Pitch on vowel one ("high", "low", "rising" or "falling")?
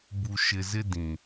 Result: low